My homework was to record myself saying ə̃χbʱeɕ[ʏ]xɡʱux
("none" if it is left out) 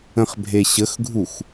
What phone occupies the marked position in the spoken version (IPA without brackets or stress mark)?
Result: ə